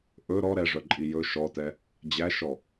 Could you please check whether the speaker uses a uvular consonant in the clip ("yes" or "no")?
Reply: no